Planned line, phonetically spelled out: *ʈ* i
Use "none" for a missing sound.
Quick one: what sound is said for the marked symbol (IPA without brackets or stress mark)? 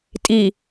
tʼ